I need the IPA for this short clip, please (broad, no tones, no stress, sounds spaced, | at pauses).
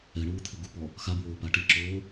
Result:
ɛ ɳ uː t̪ʰ ɪ ɡ u p ɔ | x a b w oː p a ʈ i ǁ oː